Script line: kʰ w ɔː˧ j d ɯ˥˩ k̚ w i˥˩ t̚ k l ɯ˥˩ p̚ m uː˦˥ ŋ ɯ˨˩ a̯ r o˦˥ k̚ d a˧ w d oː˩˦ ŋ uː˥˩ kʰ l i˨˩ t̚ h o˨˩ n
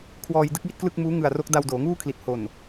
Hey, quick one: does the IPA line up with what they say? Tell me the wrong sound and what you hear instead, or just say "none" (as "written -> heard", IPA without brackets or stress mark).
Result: p̚ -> k̚